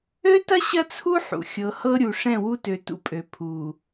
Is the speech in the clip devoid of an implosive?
yes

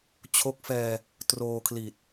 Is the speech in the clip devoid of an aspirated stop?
no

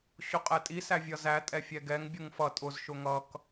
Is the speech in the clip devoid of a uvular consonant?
no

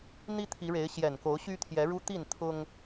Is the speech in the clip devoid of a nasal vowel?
yes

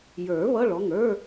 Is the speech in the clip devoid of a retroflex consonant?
no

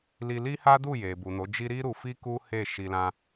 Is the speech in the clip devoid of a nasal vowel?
no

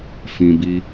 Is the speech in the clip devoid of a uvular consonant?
yes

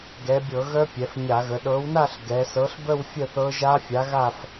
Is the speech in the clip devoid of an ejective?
yes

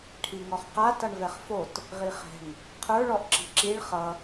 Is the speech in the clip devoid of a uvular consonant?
no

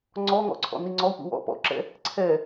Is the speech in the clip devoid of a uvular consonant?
yes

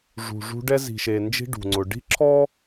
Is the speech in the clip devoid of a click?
no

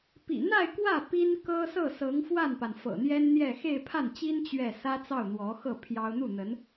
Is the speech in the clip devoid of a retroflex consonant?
yes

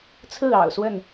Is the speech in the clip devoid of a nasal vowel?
yes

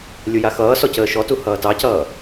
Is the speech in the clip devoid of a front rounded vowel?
yes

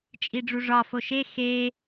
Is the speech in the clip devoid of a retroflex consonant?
no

